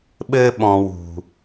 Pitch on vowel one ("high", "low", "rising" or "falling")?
high